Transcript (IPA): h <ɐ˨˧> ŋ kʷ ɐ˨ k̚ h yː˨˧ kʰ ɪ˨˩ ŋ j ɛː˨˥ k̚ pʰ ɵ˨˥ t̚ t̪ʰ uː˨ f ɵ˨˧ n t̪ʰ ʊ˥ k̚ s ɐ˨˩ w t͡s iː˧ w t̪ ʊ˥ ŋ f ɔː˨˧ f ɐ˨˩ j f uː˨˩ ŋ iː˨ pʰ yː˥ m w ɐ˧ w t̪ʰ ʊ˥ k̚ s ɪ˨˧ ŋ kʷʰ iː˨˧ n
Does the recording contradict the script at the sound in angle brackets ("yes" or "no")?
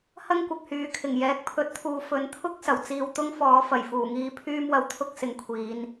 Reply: yes